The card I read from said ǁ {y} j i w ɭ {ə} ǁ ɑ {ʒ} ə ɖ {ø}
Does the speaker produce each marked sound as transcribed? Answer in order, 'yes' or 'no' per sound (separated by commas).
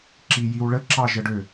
no, yes, yes, yes